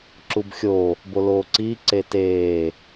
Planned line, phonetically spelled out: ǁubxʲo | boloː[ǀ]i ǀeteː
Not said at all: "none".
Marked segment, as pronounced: ǀ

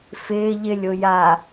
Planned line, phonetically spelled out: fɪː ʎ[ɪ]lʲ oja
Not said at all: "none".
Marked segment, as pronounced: ɪ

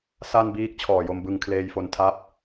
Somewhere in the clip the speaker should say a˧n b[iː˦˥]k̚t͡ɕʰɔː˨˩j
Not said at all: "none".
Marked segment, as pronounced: iː˦˥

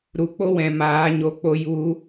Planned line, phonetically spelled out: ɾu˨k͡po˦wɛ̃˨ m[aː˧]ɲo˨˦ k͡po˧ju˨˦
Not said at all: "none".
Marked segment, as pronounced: aː˨˦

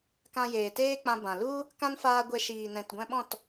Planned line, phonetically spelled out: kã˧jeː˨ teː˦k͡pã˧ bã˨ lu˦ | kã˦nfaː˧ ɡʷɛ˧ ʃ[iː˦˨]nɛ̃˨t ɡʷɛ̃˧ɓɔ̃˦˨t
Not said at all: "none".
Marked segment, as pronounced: iː˨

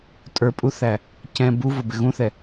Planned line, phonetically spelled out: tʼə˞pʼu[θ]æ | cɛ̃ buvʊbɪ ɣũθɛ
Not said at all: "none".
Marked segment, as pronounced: θ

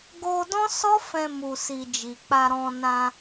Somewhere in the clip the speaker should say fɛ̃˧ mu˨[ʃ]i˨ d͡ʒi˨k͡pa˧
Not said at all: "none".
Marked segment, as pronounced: s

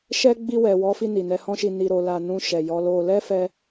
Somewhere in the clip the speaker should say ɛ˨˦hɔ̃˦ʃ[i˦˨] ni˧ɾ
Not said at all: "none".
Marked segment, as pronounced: i˧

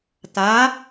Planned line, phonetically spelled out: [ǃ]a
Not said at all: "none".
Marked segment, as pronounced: t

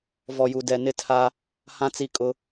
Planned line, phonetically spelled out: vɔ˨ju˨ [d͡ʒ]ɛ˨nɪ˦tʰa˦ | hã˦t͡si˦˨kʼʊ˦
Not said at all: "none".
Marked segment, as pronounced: d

